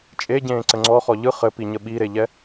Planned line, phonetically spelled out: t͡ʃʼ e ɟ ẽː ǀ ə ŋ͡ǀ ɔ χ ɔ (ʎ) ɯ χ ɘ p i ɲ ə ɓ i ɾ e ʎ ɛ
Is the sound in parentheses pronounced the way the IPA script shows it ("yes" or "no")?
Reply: yes